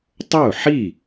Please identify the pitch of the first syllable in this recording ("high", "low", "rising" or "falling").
falling